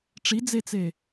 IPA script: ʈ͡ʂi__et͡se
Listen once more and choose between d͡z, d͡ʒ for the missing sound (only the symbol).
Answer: d͡z